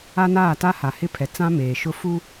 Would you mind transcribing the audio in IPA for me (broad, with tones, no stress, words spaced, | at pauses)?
a˦naː˦˨ ta˦ha˨hɪ˦pʰɛ˨ t͡sã˦meː˨ʃʊ˦ fu˦